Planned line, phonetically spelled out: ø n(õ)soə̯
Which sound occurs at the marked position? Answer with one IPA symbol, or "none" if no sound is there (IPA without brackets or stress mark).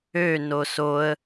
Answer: o